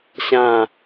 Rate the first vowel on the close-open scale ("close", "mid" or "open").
open